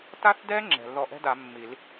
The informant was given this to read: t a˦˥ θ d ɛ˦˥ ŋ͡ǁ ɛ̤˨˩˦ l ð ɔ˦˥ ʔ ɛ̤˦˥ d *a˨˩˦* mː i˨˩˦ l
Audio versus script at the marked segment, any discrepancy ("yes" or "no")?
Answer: no